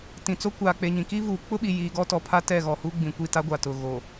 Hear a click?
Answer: no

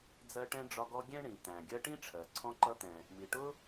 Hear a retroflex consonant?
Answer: yes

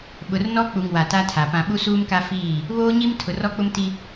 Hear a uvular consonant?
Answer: no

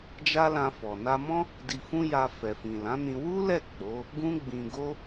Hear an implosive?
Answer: no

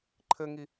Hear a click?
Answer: yes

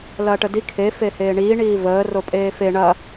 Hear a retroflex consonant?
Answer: yes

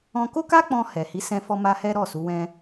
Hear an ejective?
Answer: no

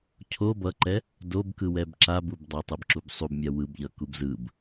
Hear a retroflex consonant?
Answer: no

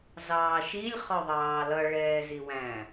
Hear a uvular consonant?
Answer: yes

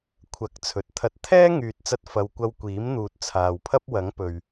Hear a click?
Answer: no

